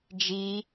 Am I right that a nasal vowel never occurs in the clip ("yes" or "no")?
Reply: yes